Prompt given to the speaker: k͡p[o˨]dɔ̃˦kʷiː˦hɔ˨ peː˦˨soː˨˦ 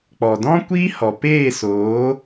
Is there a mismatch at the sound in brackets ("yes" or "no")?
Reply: yes